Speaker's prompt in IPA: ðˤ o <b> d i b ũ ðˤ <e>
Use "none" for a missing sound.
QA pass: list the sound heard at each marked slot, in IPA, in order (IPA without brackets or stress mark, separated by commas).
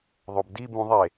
b, e